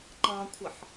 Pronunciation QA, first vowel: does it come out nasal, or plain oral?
nasal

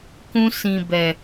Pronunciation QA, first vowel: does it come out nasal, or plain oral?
nasal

